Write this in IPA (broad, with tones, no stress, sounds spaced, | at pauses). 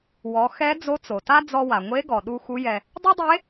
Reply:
w ɔ˩˧ x ɛ˧˥ d͡z o˧˥ t͡s o˩ t a˥ d͡z ɔ˧ w a˩ ŋʷ e˧˥ ɡ ɔ˩ ɗ u˧ x u˧˥ j ɛ˧ | dˤ e˥ dˤ e˧˥